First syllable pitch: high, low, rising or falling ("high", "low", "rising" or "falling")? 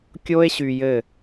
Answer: high